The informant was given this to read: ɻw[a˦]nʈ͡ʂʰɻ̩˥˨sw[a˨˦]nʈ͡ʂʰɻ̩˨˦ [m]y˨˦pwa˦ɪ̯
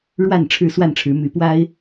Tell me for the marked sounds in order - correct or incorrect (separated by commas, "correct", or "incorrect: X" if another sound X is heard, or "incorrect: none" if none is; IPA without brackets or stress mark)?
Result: incorrect: a˥˨, incorrect: a˥˨, correct